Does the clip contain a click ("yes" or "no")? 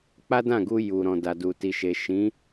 no